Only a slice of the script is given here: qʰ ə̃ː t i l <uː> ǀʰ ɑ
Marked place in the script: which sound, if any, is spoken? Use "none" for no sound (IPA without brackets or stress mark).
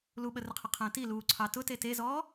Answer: uː